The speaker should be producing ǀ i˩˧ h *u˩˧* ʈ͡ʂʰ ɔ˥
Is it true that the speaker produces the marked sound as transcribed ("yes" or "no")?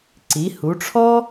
yes